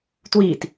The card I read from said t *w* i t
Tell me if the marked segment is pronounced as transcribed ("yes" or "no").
yes